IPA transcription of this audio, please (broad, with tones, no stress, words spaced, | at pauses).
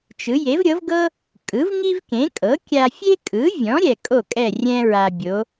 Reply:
t͡ʃɯ˩˥ je˩˥vɾʲɤ˩˥vɡɤ˥ | kʼɯ˩˥vŋi˥vkẽ˩˥ kʼɤ˩˥kʲa˧fʲe˥ kʼɯ˩˥vʲɔ̃˩˥ɾʲɛ˩ kʼo˥˩kʼɛ˥˩rʲɛ̃˥ ɹa˧bʲo˩˥